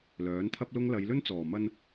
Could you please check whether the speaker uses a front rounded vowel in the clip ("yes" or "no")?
yes